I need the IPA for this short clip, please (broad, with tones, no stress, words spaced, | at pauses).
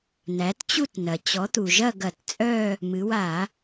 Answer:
næ˩˥tt͡ɕu˥˨tnɐ˩ t͡ɕɔ˩˥t̪u˩ʒɐ˥˨ ɡɐ˧˩˧tt͡sʼœ˥˨ | mɨ˩˧wa˧˩˧